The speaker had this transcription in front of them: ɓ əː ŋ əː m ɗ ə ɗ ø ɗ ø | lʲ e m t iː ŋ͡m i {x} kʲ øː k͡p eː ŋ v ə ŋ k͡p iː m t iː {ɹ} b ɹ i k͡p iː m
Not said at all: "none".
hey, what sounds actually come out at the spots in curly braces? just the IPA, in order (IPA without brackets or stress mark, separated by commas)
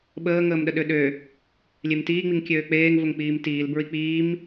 ŋ, l